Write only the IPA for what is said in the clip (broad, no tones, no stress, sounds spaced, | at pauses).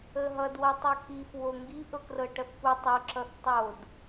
ə ɦ ʌ d w ʌ tˤ ɤ k i f w o ŋ ɡ i ʔ ɤ k r ɤ ʈ ʌ θ p u tˤ o ǁ ʌ θ tˤ o d